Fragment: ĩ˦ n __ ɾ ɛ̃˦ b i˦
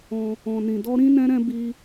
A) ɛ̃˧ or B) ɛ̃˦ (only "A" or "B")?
B